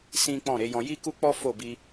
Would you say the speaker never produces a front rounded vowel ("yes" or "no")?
yes